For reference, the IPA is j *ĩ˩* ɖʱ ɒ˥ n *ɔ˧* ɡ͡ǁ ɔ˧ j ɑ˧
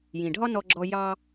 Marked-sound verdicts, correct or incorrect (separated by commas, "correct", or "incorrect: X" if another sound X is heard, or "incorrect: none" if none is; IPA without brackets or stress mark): correct, correct